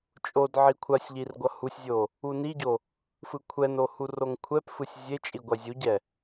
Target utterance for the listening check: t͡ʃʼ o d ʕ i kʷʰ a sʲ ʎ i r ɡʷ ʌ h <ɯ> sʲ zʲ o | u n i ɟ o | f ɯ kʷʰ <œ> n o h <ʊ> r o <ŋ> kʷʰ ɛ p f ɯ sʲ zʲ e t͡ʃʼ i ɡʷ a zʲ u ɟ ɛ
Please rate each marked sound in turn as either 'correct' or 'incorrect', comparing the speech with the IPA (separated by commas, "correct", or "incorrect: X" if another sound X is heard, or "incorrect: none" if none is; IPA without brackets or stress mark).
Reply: incorrect: u, incorrect: ɛ, incorrect: u, correct